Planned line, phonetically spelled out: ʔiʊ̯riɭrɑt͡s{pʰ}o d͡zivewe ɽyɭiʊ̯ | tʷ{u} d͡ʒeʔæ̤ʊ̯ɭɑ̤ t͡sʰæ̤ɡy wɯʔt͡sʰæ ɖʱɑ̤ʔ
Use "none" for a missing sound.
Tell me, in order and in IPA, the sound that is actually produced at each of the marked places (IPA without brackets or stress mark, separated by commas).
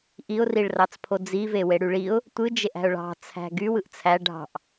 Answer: pʰ, ɯ